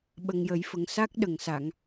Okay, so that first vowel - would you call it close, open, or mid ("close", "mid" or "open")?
mid